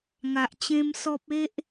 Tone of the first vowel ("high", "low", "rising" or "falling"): low